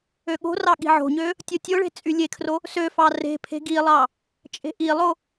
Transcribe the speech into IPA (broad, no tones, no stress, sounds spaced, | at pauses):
ø ɠ o̤ r ɑ ɠ i̤ ʕ o̤ ɲ ø | tʲ o tʲ o ɭ e̤ t͡sʼ y lʲ e kʰ r o | s ø f ɑ r e̤ pʰ e̤ ɡ i lˠ ɑ | t͡ʃʼ e̤ ʔ i lˠ o